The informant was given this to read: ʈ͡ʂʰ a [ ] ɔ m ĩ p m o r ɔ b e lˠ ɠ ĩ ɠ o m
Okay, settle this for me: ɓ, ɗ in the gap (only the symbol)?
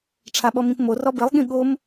ɓ